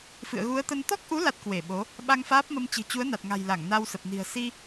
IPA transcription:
f ɨ̰˧˨ ə̯ ɣ u˨˦ ə̯ t̪ ə˧ n t̪ ɔ˦˥ k̚ ʔ u˨˦ l a˦˥ t̚ k w e˧˩ ɓ o˨˦ | ɓ a˧ ŋ f aː˦˥ p̚ m ə˧ m t͡ɕ ɨ̤˨˩ t͡ɕ u˨˦ ə̯ n a˨˩ t̚ ŋ a̤˨˩ j l a˧˩ ŋ n a˧ w s ə˨˩ p̚ n i̤˨˩ ə̯ s i˧

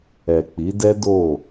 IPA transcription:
ɛ˨ k͡p i˨˦ d ɛ˦ d o˦˨

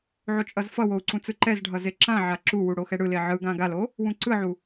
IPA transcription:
ʕ o t͡ʃʼ ʌ z f ʌ w o u̯ ǀ ũ t͡s ɯ ǃ ɛ z ɖʱ ʌ z e ǁ ã ʕ a ǁ u w u ɽ o x ɛ ɽ ɯ l e ʕ ɯ ɡ ã ɡ a l o | w ũ ǀ ɯ ʕ u

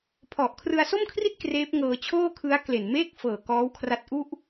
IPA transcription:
pʰ ɔ˨˩ ʔ kʰ r ɯ˧ a̯ s o˥˩ m kʰ r i˥˩ t̚ k r eː˦˥ p̚ ŋ ɤː˧ t͡ɕʰ oː˥˩ kʰ ɯ˦˥ a̯ k l e˨˩ n m eː˥˩ k̚ f ɤː˨˩ k ɔː˦˥ w kʰ r a˦˥ t̚ ʔ u˥˩ ʔ

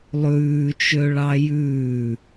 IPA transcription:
lˠ ʉː t͡ʃ ø ɭ ɑ j ʉː

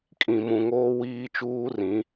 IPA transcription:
kʼ ĩ˨ m ũ˨ ŋ oː˦ w iː˦ t͡ʃ uː˦ r ĩ˨˦

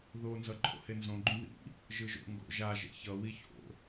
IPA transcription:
ð o n z ʌ ǃʼ o̰ h e n z õ ɡ͡ǃ ũ ð ḭ | ʒ ɯ ʒ o̰ ŋ ɡ o̰ ʒ a ʒ ḛ ç ʌ w i ç o̰

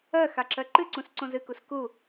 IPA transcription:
ɜ x a ǁ ɜ ǃ ɨ ǀ ũ s ǀ õ z ɨ k u s k u

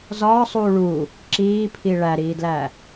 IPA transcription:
z ɒː sˤ uː ɭ u | ǁ iː pʰ i ɭ æ ɾ iː d l æ

